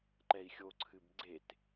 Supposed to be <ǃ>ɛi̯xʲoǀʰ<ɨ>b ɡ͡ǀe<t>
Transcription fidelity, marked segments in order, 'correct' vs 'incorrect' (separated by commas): correct, correct, correct